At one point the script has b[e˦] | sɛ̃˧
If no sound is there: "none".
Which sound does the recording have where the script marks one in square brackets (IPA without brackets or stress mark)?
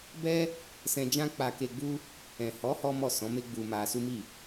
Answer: ɛ˦